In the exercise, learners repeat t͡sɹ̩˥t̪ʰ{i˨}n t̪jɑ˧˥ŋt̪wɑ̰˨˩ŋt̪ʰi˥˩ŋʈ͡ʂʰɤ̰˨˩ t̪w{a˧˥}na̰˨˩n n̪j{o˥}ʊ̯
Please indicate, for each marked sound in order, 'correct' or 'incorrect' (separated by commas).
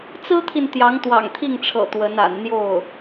correct, incorrect, incorrect